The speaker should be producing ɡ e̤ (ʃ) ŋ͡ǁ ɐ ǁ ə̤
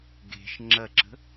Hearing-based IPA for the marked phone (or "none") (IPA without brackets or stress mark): ʃ